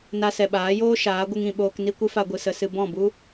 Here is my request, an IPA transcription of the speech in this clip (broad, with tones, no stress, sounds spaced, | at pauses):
n a˧ s ɛ˨ ɓ aː˨˦ j oː˦ ʃ aː˨˦ ɡʷ ɨ˧ ŋ ĩ˨ ɓ oː˧ k n i˦ kʷ ɨ˦ f a˧ ɡʷ ɨ˨ s ə˧ s ɨ˧ b ɔ̃˦˨ b u˦